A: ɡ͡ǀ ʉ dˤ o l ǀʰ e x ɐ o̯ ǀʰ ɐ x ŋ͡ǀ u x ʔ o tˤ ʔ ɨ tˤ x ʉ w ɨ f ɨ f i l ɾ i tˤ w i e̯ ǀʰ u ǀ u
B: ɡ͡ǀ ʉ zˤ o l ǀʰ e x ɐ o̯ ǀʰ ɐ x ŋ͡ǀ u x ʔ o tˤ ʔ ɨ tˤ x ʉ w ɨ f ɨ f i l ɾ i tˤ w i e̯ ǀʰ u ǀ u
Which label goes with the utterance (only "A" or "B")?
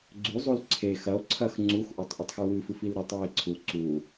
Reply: B